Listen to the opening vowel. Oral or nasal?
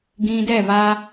nasal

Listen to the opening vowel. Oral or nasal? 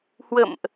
oral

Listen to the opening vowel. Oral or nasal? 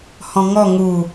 nasal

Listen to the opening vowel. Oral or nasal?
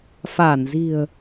oral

